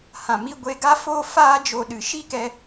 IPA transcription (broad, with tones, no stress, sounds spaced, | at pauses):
h ã˨ m i˧ ɡʷ e˧ ɡ a˦ f oː˦ f aː˦ d͡ʒ o˧ ɗ ɨ˨ ʃ i˦ k ɛ˧